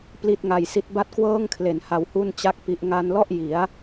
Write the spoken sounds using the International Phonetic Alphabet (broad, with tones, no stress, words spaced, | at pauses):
pli˦˥t̚ŋa˧jsi˦˥t̚ ba˥˩t̚kwɤː˥˩ŋkʰle˩˦n ha˧whu˥˩nt͡ɕa˥˩k̚pi˦˥ʔ ŋa˧nlɔ˥˩ʔ ji˩˦a̯